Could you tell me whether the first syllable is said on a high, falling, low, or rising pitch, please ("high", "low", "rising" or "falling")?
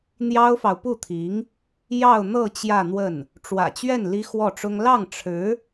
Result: high